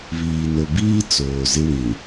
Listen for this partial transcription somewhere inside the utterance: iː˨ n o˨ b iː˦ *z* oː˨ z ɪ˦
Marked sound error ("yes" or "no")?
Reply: yes